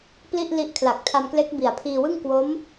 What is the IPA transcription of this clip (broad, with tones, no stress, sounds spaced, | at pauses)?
p l i˥˩ ʔ l i˦˥ ʔ kʰ l a˨˩ k̚ tʰ a˧ m k l e˦˥ k̚ b i˨˩ a̯ pʰ iː˧ w ɯ˥˩ ŋ k w o˦˥ m